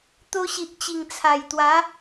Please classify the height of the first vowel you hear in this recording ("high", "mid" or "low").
mid